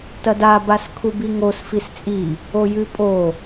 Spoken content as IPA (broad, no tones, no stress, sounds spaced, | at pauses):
t ɐ d a b a s kʰ u b i ŋ o s f i s t͡sʼ i | o j ʉ pʼ o